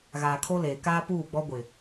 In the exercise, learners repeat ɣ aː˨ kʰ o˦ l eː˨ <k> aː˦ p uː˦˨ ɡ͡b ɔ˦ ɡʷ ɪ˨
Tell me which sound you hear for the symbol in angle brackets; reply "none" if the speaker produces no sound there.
k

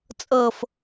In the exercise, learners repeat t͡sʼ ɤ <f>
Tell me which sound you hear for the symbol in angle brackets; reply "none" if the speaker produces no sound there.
f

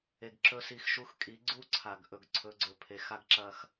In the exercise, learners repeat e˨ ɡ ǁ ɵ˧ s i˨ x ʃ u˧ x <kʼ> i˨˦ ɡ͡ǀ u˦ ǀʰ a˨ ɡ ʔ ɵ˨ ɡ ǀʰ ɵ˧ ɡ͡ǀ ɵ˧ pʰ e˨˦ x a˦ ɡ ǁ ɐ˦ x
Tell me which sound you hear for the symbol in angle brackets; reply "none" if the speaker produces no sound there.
kʼ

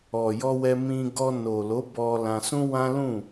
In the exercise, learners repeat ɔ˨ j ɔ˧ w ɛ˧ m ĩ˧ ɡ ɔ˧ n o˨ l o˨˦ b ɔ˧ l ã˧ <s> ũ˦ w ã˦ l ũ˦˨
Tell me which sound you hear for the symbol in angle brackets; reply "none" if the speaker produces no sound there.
s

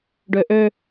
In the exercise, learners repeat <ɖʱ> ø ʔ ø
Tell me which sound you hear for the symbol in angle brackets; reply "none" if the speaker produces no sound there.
ɖ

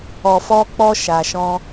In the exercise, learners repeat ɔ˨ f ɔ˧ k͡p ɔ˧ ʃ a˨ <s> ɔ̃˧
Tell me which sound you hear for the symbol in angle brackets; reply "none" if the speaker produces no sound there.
ʃ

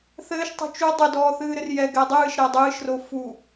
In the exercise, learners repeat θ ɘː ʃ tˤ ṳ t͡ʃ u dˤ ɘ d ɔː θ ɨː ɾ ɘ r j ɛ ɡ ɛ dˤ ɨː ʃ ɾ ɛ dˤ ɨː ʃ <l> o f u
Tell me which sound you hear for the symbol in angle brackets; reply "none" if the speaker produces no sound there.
r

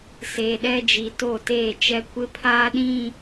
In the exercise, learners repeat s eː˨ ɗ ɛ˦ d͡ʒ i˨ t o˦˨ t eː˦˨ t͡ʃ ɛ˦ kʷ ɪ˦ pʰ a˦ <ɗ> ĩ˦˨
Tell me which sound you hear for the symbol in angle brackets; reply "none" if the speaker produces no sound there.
ɗ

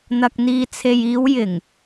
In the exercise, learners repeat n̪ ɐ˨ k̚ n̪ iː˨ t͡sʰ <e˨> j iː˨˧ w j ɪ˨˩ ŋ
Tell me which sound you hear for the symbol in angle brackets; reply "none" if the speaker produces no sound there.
e˨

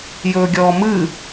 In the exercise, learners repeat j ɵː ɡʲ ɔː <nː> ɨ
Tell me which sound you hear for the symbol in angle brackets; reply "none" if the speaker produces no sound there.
m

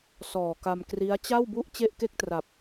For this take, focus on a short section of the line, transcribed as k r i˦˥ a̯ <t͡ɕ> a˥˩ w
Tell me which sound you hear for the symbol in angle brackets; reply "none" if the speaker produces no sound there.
t͡ɕ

